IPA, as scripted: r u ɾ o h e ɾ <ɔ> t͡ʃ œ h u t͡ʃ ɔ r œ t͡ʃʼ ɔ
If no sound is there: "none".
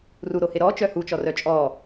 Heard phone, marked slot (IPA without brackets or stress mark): ɔ